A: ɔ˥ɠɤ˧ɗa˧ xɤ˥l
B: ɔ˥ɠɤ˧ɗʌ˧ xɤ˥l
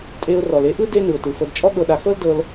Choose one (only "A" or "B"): A